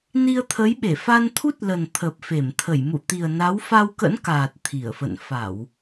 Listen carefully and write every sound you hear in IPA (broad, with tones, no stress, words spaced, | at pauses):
ni˧ə̯t̪ʰə˨˦jɓe˧˩ fa˧nt̪ʰu˦˥t̚lə˨˩n t̪ʰə˨˩p̚fe˧˩m t̪ʰə˧˩jmṵ˧˨t̪i˨˩ə̯na˨˦w fa˧wkə̰˧˥nkaː˨˩t̚ t̪ʰi˧˩ə̯fə̰˧˨n fa˧˩˨w